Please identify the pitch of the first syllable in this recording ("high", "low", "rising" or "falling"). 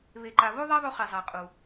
low